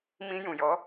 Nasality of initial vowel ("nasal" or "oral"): nasal